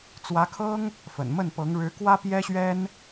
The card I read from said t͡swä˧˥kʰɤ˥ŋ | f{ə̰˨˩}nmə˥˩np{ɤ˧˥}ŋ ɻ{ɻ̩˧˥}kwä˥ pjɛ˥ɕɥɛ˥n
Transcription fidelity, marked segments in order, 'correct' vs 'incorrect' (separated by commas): correct, correct, correct